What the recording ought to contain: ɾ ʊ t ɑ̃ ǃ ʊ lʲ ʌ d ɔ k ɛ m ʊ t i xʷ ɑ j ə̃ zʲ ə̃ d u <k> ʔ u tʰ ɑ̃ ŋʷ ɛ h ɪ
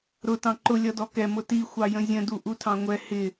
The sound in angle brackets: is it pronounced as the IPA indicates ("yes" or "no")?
no